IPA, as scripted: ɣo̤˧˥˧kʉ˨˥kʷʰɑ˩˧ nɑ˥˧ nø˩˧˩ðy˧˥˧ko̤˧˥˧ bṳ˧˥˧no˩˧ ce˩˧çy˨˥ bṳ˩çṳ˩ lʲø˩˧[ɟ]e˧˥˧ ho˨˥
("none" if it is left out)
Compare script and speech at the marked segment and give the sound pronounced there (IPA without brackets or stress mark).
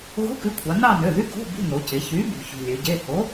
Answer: ɟ